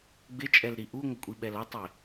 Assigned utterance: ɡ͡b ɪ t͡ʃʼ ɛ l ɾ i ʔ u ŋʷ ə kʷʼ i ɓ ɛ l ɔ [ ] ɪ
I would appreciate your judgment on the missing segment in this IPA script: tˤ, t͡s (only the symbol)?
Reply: tˤ